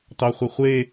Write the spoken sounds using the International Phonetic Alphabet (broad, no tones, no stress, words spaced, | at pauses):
tɑχʷiχʷe